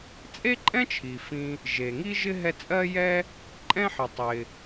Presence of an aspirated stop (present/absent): present